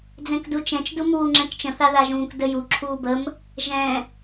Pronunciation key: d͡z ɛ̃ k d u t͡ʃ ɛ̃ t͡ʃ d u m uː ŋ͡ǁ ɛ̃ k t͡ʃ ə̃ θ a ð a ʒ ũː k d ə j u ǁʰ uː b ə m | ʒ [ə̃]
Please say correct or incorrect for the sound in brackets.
incorrect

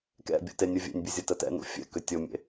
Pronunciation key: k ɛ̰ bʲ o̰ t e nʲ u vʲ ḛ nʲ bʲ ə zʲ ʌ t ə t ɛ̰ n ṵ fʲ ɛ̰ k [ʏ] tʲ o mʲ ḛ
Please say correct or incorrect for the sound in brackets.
correct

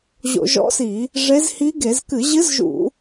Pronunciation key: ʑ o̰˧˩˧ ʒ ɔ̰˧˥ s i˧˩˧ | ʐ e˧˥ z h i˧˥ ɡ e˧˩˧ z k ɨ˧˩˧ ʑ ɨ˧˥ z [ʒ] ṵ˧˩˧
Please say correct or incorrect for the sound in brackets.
correct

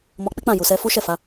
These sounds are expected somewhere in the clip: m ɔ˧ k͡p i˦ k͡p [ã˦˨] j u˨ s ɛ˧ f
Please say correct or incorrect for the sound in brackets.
correct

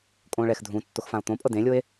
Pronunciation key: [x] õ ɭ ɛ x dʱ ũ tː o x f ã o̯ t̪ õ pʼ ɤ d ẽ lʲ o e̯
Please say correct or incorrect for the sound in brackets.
incorrect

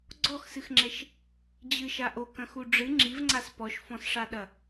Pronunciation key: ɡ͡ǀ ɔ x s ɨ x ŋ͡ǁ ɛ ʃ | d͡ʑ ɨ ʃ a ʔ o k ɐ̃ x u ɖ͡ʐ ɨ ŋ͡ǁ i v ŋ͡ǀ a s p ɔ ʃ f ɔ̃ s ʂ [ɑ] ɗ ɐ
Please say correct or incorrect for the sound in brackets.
incorrect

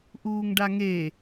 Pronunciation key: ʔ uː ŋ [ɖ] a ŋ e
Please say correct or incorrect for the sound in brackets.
correct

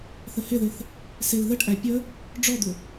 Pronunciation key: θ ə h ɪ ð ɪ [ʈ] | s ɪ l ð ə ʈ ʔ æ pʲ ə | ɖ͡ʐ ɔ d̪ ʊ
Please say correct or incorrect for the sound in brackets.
incorrect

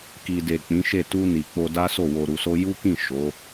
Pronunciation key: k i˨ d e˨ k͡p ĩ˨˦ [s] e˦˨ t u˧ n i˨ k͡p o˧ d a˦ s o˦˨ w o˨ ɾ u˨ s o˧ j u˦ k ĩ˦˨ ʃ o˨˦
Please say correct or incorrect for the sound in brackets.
incorrect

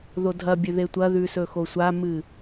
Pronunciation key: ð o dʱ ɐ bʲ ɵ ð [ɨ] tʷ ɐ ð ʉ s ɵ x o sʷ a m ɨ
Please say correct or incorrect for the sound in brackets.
incorrect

